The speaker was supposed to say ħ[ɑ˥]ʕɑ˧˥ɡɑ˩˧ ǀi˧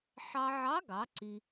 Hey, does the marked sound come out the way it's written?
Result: no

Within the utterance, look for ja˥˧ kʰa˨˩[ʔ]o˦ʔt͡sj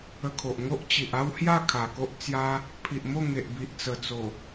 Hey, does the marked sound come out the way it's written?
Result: no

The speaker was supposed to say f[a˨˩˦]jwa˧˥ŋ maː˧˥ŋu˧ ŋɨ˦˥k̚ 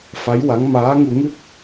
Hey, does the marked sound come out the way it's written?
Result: no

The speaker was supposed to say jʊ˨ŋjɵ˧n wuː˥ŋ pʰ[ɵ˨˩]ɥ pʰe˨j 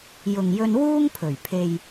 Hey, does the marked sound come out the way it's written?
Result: yes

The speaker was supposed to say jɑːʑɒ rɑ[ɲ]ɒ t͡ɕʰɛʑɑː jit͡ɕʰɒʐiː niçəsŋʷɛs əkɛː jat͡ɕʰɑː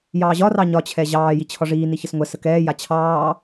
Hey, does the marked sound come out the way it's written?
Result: yes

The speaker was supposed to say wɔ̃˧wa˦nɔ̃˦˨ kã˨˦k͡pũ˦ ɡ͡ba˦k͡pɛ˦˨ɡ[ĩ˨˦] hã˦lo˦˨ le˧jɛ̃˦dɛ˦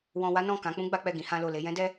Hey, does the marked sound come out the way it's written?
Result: yes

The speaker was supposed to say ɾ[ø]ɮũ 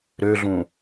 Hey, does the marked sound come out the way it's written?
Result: yes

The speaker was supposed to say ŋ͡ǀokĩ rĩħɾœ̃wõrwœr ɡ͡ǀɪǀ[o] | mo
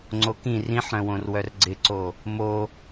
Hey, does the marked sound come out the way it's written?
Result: yes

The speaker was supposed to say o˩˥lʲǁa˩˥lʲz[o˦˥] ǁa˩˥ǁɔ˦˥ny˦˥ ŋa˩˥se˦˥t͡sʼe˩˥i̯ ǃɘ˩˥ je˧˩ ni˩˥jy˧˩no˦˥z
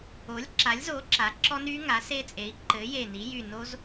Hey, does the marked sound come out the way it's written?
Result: no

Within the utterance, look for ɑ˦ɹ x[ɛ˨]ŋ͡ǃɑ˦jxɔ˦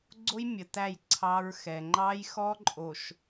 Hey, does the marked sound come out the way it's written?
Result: yes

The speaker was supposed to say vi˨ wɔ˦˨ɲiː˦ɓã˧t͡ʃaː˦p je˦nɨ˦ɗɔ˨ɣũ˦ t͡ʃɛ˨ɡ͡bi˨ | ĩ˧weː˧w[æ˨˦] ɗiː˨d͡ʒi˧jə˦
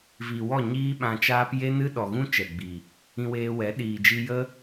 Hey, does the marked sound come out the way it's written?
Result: no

